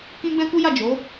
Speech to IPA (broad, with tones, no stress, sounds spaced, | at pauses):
k ĩ˦ ɡ͡b ɛ̃˦ k u˦ j a˦˨ d͡ʒ o˨˦